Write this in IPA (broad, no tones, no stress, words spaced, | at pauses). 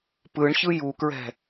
pɯɳçɯ jukɹɛ̤